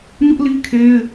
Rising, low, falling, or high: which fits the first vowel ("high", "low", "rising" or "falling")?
high